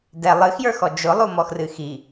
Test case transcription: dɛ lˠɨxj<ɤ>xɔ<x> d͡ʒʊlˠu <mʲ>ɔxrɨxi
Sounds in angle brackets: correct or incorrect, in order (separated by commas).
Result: incorrect, incorrect, incorrect